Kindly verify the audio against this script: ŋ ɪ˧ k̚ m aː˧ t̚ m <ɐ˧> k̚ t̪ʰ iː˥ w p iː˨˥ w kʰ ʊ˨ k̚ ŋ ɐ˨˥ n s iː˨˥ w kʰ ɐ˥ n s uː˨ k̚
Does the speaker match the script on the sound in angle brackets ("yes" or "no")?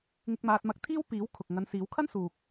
yes